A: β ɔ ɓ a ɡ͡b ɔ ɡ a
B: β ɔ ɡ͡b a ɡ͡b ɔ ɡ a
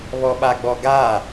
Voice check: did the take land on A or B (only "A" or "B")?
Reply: A